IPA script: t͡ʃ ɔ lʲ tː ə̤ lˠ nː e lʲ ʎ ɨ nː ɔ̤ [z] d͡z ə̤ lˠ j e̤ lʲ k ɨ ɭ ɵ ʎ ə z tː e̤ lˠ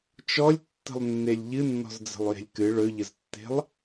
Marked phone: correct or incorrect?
correct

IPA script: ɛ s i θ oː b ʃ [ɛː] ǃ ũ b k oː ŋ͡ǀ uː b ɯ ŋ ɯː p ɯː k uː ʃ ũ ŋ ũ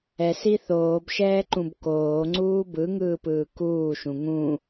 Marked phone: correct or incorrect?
correct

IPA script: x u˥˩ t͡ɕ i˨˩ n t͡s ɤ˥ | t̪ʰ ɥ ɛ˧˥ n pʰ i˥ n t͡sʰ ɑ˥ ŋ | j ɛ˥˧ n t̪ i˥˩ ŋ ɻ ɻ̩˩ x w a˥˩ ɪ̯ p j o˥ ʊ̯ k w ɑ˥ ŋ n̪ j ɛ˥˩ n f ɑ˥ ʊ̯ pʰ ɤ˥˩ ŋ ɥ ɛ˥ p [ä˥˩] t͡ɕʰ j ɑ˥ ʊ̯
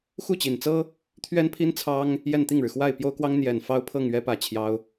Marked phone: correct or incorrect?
correct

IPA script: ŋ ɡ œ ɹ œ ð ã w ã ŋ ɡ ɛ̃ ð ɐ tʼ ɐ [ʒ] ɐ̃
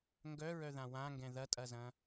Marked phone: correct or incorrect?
incorrect: z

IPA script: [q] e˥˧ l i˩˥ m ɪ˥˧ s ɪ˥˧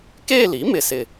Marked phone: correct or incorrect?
incorrect: k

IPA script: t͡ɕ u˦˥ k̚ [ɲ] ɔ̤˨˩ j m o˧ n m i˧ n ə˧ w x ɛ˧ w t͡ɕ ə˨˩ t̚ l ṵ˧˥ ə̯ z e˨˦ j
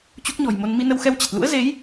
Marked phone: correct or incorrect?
correct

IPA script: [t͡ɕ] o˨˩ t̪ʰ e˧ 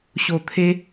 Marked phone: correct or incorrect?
incorrect: ɕ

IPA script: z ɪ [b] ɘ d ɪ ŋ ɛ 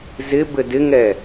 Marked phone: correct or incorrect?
correct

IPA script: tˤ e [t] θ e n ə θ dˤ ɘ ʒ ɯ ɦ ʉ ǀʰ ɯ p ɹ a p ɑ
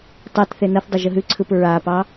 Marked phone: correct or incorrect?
correct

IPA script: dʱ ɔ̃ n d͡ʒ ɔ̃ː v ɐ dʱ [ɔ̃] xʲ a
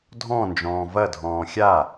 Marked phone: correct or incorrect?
incorrect: ɔ̃ː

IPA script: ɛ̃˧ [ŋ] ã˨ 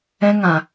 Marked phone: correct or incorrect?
correct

